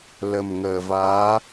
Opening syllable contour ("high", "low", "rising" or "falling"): low